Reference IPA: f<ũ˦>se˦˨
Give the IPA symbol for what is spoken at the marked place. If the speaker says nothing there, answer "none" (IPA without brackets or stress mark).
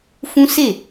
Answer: ũ˦